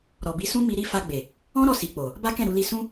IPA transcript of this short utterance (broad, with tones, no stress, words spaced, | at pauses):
ɾɔ˨bi˨˦sũ˦ mi˧ɾi˦ fa˧ɡ͡be˨ | ɔ̃˦ ɾɔ˦˨si˨k͡po˨ | ba˦kɛ̃˦˨ɾu˧li˧ sũ˦